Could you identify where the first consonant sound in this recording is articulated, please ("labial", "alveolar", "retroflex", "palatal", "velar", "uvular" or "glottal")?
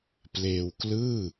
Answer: labial